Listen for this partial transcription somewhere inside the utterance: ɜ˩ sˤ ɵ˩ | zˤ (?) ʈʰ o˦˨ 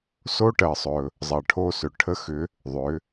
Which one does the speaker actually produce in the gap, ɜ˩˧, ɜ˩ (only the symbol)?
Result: ɜ˩